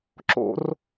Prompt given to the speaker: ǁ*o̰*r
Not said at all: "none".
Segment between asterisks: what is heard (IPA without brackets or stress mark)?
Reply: o̰